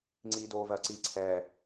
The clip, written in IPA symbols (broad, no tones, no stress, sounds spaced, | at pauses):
ŋ͡ǀ iː d oː v ɜ ǀ i ǀʰ ɛː